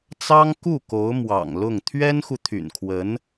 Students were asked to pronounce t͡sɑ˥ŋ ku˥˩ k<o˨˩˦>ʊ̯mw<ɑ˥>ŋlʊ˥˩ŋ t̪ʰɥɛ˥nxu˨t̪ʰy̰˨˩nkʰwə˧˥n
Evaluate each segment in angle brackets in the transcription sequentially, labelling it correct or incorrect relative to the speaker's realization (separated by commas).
incorrect, incorrect